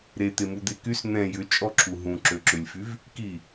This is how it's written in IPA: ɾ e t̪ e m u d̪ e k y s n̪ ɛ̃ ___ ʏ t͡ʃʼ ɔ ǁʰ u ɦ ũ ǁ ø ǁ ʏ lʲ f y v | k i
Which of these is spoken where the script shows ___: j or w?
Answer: j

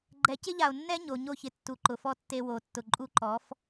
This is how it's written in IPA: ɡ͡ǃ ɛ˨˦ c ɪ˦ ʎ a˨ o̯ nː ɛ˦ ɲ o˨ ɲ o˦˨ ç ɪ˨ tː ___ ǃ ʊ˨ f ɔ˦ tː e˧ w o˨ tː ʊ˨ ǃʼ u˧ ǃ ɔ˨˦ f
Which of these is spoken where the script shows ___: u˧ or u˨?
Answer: u˨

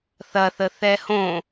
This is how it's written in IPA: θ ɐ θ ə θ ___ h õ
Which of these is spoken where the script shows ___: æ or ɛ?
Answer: ɛ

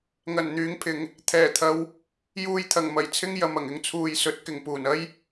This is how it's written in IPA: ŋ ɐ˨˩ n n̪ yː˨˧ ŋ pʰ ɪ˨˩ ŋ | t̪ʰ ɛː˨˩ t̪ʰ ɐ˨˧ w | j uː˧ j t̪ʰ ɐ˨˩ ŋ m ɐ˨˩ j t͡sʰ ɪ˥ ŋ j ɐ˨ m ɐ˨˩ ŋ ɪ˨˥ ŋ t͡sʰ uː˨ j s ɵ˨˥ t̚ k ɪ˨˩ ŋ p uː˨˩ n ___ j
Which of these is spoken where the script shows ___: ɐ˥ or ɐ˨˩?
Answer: ɐ˥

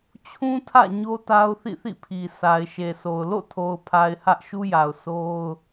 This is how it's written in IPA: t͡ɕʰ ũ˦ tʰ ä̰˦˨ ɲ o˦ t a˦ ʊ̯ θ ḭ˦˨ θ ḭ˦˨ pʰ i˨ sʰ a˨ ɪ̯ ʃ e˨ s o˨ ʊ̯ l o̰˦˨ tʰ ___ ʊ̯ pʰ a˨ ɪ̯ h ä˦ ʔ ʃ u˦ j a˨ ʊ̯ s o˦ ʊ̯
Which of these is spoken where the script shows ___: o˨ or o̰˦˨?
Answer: o˨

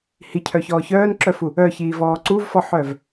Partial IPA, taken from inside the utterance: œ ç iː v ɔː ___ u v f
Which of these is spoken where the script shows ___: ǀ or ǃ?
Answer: ǀ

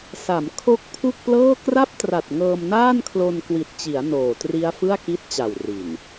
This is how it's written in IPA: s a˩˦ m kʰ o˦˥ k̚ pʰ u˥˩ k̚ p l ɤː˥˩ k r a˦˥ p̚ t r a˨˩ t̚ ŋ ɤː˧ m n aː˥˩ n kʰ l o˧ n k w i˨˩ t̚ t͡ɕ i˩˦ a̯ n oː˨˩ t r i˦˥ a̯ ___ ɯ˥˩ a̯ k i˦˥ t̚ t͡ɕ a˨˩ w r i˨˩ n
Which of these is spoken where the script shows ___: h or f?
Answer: f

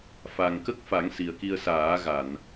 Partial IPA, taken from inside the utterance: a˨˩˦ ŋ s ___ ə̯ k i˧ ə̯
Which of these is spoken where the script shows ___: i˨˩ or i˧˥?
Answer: i˨˩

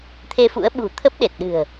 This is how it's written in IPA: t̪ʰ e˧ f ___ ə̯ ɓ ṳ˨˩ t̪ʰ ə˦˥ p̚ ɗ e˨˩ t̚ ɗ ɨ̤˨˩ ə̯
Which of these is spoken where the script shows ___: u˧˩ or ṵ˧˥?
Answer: ṵ˧˥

